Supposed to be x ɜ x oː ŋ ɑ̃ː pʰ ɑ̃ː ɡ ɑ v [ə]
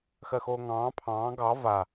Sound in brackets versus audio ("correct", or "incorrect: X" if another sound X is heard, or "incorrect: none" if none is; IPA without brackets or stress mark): incorrect: a